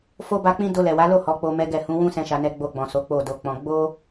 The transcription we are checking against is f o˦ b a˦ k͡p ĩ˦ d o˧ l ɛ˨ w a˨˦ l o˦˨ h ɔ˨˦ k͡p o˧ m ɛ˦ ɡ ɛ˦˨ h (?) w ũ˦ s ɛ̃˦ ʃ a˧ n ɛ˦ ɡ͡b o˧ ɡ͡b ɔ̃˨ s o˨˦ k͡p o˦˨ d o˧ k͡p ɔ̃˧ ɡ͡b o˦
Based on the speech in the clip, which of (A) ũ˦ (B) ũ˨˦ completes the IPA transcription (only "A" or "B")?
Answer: B